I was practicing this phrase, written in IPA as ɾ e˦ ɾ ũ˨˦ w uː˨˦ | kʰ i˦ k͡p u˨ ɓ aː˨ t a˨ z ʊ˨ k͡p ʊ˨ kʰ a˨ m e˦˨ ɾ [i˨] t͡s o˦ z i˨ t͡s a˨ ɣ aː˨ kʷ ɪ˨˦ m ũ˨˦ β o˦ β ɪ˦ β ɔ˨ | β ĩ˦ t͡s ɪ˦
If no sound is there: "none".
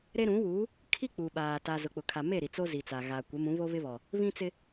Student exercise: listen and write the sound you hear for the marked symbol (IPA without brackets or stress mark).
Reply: i˨